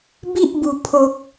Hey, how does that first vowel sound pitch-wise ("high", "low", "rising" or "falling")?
high